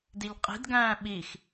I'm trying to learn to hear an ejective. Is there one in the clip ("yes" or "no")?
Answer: yes